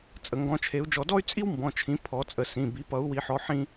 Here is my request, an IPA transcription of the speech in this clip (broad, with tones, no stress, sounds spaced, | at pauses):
t͡sʼ ə˨˦ ŋ ɡ ɔ̃˨˦ t͡ʃʰ e˨˦ u̯ d͡ʒ ɔ˨˦ d ɔ˥ y̯ t͡sʼ i˥ w m b ɔ̃˩˧˩ t͡ʃʰ ĩ˨˦ pʰ ɔ˨˩˦ t͡sʼ ə˧˩ s ĩ˩˧˩ b i˨˦ p ʌ˨˦ u̯ w i˨˦ ħ ɔ˨˦ ħ ĩ˥